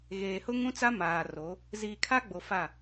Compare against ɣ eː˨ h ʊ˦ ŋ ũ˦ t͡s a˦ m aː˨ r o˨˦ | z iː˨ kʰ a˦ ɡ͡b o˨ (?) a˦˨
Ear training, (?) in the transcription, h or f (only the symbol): f